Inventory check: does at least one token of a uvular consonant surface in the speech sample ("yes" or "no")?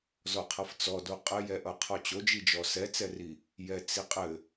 yes